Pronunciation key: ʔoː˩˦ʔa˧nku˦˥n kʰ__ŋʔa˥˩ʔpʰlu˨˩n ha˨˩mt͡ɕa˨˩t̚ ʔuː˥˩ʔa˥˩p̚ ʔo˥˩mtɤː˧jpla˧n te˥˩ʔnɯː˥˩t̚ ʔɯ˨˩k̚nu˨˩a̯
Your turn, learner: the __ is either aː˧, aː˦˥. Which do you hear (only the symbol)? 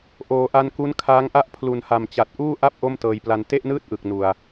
aː˦˥